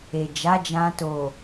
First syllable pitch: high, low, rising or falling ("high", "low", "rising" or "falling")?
low